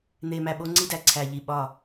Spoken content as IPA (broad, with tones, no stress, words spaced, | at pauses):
n̪e˨mæ˨ɓo˦ ŋ͡ǀi˦dæ˨ ǀʰæ˨ʎi˨ ɓɒ˦˨